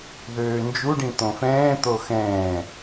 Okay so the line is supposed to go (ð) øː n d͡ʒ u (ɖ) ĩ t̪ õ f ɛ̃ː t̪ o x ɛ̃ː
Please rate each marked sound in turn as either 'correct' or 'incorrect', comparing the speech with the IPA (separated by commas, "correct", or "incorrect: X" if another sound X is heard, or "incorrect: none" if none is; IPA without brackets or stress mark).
correct, correct